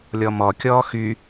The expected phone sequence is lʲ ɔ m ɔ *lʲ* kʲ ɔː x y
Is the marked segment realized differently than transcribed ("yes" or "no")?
yes